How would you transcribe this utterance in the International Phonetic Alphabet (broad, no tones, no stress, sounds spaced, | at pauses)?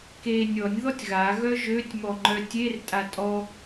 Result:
k e nʲ ɔ nʲ ð ɔ tʲ ɣ a ɣ œ ʒ ø tʲ m ɔ ŋ͡ǃ œ tʲ e r tʼ a tʼ ɔ